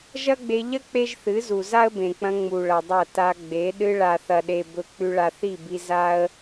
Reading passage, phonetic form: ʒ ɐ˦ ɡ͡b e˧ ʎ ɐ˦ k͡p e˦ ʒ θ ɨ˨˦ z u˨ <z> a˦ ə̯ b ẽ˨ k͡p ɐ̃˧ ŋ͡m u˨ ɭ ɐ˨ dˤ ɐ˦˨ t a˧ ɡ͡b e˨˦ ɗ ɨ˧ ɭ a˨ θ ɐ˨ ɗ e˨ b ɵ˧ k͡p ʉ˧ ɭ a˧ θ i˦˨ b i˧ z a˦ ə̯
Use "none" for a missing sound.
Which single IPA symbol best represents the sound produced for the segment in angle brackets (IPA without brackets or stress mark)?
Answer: z